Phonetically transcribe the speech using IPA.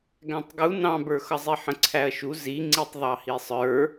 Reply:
ɡ æ̃ tˤ ɡ u n ɑ̃ b ə˞ x ʌ zˤ i ħ ə̃ ǀʰ æ ɐ̯ ʃ u z i ŋ͡ǀ i tˤ ðˤ ɑ h i sˤ ə˞

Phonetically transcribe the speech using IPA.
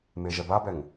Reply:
m e ʒ ɛ b a b ɛ ŋ

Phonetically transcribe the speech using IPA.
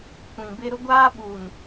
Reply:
kʷ ĩ˨ b ɪ˦ ɾ ʊ˦ ɡʷ aː˦ ɓ uː˨ n

